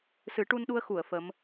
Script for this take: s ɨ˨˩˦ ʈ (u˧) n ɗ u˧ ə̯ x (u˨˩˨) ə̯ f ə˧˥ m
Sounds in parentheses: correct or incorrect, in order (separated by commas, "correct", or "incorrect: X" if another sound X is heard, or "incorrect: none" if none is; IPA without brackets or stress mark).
correct, correct